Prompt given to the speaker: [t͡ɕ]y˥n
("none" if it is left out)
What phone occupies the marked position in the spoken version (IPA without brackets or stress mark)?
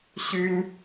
ɕ